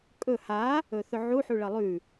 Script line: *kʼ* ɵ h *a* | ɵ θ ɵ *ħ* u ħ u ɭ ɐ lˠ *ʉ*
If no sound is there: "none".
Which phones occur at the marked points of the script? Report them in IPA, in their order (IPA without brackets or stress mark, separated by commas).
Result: kʼ, a, ʕ, ʉ